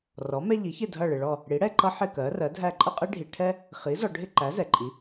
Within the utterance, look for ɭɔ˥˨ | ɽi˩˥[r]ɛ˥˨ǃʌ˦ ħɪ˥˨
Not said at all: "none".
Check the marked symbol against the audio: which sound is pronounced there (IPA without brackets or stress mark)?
ɽ